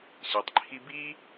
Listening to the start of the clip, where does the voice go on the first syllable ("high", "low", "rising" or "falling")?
low